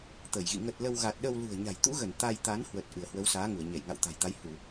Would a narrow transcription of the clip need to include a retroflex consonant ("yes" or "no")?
no